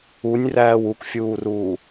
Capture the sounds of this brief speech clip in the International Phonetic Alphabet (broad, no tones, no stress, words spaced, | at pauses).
unʲræːw ukfʲuːruː